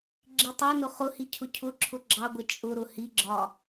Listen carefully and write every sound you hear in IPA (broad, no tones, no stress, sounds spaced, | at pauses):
ɡ͡ǁ i tˤ ɛ n ʊ χ ʊ h i cʰ ʊ cʰ ʊ ǁʰ ʊ ɡ͡ǁ ɑ ɡʷ ə t͡ʃʼ ʊ ɾ ʊ h i ɡ͡ǁ ɒ